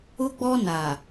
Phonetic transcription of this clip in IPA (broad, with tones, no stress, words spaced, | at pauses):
ʊ˦ɡ͡bɔ˦na˨